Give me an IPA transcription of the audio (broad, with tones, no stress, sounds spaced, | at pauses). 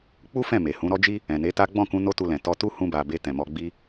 k͡p u˦ f ɛ̃˦˨ m e˨ h ũ˨˦ ɾ ɔ˦ d͡ʒ i˦ | ɛ̃˨ n e˨˦ t a˦ ɡ͡b ɔ̃˦˨ k ũ˧ n o˦ t u˧ l ɛ̃˨ t ɔ˧ t u˦ h ũ˧ b a˨ b e˧ t ɛ̃˨ m ɔ˧ ɡ͡b i˦